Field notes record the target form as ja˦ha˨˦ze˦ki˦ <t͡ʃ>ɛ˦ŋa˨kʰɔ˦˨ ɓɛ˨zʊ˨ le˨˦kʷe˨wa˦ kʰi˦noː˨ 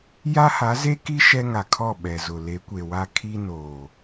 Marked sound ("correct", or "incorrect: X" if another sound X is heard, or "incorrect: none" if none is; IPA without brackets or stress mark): incorrect: ʃ